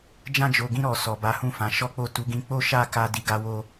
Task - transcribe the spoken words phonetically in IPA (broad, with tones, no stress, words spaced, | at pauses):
d͡ʒã˧d͡ʒo˨ɡĩ˧ ɾɔ˨ sɔ˨ba˨˦hũ˦˨ fã˨˦ʃɔ˦k͡po˦˨ tu˨˦ɡĩ˧ k͡po˦ʃa˦˨ ka˧di˨ɡa˧wo˧